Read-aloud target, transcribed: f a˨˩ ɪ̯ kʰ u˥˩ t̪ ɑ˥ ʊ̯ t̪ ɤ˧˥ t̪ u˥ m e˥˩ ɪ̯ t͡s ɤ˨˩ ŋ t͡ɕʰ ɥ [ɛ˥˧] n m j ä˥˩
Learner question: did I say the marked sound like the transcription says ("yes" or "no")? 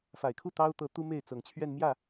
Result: yes